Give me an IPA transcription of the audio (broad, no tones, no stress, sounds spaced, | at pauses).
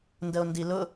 n d ə o̯ n d i l ʊ